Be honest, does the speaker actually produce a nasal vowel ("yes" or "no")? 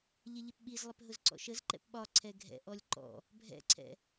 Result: no